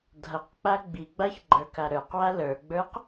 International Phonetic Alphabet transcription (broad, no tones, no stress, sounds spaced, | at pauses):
dʱ ʌ q k͡p a ɡ͡b i ɡ͡b a ç ɡ͡ǃ ə˞ k a ɾ ə˞ q w a l ə˞ ɡ͡b ə˞ q